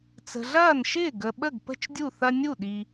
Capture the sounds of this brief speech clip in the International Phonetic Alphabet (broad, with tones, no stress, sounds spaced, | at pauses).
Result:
t͡s ə̤˨ ɮ ɐː˥˩ n ʃ ɪː˥˩ ɡ ə˨ ɓ ə˥˩ ɡ p ə̤˥˩ t͡ʃ dʲ u˥˩ θ ɐ˦ nʲ u˥˩ ɗ i˨